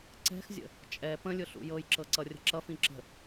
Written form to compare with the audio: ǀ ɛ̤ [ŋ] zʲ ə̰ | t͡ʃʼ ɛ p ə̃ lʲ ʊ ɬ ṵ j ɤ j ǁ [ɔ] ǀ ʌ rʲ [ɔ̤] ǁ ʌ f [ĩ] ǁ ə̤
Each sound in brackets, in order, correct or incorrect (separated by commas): incorrect, incorrect, incorrect, correct